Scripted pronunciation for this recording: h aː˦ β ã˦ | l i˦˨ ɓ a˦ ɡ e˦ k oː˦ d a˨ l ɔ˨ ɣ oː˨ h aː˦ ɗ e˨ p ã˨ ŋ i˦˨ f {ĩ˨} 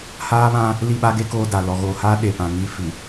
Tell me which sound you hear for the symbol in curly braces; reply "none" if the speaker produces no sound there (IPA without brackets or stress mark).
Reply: i˨